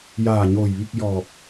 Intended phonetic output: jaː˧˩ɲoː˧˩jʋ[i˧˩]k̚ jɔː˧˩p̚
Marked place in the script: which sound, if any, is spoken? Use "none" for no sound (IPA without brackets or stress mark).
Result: i˥˨